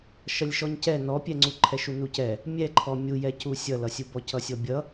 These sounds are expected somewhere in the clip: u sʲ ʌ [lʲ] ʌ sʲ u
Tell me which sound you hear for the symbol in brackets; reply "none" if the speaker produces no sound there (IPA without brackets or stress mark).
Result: l